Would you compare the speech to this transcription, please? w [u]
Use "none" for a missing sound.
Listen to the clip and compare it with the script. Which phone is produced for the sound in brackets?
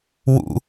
ṵ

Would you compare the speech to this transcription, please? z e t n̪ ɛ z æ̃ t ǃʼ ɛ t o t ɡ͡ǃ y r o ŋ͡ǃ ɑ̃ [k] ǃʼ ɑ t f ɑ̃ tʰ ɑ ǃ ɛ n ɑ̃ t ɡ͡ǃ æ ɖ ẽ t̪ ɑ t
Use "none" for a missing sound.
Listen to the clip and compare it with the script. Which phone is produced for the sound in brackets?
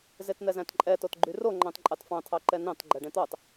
t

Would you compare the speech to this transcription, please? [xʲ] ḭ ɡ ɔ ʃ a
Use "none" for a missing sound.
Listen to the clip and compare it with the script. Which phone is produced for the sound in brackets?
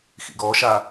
x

